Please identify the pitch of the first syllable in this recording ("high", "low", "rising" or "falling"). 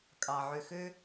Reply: low